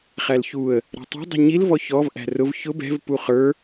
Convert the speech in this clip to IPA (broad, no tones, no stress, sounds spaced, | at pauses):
χ æ l ç u ə̯ | ɾ ɛ̤ tˤ ɛ̤ dˤ i̤ ɲ i l v ɔ ç ɔ v ʔ æ̤ r ʊ v ç ʊ b ɛ̤ v p u χ ə˞